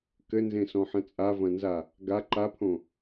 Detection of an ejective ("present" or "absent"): present